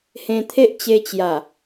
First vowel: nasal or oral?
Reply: nasal